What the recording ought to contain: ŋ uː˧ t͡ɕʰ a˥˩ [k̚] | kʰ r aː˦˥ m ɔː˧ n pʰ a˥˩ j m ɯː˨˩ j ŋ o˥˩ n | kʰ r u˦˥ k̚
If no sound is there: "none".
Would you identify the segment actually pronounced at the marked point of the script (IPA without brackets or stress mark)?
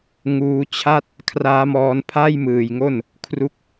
t̚